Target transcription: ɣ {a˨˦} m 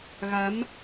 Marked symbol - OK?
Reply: yes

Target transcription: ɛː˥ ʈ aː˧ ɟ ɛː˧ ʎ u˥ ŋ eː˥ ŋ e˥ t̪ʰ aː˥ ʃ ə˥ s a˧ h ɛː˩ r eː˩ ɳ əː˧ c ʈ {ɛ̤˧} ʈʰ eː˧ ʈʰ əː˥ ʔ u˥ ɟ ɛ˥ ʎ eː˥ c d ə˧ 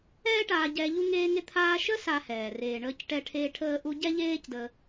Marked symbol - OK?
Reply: no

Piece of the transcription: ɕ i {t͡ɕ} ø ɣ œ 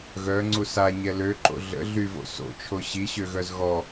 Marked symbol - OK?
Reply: no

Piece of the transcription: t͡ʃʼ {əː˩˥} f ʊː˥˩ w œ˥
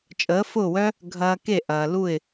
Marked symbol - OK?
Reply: yes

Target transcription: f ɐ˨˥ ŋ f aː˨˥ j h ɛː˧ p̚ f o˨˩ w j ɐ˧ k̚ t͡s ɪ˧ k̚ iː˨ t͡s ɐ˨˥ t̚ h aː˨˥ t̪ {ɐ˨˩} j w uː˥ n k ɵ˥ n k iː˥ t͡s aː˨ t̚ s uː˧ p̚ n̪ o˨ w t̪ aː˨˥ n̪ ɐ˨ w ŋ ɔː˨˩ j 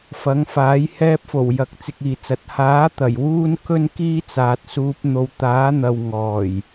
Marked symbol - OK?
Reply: yes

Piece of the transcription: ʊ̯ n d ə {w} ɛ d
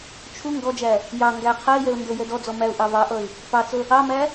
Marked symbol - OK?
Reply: no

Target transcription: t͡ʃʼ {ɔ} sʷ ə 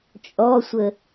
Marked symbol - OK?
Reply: yes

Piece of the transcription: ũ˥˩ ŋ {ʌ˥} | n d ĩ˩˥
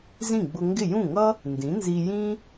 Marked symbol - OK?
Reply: yes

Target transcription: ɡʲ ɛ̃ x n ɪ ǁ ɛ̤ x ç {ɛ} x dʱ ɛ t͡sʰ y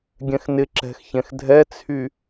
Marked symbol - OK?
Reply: no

